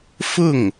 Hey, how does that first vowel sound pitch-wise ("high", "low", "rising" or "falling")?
falling